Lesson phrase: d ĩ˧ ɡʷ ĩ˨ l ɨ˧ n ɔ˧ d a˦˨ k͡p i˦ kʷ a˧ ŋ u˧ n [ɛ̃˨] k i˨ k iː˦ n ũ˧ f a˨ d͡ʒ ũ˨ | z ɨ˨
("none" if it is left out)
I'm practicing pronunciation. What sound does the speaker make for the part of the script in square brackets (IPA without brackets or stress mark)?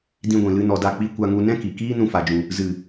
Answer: ɛ̃˦